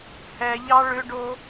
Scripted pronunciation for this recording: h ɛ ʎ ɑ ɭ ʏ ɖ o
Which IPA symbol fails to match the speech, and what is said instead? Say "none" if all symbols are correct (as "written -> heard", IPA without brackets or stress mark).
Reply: none